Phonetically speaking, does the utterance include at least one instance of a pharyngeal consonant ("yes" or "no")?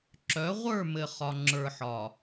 yes